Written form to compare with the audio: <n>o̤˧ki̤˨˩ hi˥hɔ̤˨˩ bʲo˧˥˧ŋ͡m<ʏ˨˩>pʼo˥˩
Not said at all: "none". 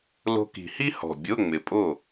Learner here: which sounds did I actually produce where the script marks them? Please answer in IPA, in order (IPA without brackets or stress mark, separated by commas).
l, ɪ˨˩